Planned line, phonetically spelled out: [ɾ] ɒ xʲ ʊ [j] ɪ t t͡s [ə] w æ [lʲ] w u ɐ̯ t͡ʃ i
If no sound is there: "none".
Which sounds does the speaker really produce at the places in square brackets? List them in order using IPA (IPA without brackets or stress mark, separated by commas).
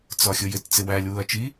t͡s, j, ɪ, lʲ